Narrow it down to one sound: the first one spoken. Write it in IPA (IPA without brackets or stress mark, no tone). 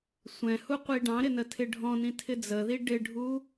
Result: sʷ